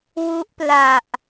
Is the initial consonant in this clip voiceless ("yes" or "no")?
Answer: no